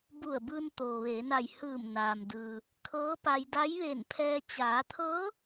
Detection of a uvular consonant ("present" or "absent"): absent